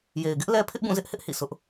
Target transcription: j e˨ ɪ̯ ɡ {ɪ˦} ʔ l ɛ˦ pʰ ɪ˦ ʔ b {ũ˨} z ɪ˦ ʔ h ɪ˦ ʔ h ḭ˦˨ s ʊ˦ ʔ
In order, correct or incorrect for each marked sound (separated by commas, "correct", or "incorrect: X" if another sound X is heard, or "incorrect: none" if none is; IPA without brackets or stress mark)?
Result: correct, incorrect: ũ˦˨